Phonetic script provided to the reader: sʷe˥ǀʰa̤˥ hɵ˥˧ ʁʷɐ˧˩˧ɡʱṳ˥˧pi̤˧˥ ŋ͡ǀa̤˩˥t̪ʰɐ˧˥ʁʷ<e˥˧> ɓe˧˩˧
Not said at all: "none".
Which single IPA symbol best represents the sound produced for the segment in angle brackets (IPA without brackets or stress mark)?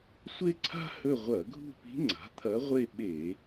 e˥˧